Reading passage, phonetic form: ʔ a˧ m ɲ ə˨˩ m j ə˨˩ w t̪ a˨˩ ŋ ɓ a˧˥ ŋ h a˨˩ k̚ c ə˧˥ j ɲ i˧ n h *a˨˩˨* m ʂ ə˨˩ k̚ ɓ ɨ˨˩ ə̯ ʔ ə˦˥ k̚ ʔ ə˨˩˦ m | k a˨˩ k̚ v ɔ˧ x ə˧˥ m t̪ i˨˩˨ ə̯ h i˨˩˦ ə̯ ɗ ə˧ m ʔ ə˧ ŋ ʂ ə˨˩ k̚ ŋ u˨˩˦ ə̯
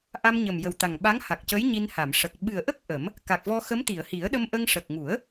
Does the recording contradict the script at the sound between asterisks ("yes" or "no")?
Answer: no